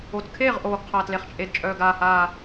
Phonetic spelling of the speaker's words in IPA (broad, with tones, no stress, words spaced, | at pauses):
o˨˩tkʰeː˥˩ʁʔoː˨˩ɡqʰa˨˩ tle˨˩χt͡ʃʼe˨˩dt͡ʃʼœː˨˩ ɡaː˨˩haː˨˩